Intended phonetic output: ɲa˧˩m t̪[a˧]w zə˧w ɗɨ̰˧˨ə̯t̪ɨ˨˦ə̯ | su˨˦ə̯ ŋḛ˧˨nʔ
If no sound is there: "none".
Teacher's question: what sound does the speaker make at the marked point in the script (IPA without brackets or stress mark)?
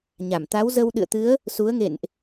a˨˦